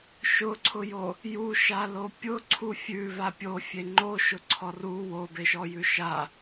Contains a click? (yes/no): yes